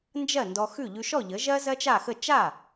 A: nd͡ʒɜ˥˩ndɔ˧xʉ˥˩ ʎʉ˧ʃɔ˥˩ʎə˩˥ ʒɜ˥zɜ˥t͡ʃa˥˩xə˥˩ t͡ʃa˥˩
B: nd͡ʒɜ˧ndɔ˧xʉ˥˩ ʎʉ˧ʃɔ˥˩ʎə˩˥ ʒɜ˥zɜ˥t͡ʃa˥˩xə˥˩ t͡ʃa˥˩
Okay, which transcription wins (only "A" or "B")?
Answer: A